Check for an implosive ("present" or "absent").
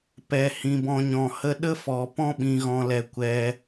present